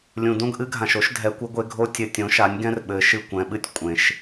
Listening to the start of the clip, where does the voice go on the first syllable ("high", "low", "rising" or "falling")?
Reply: low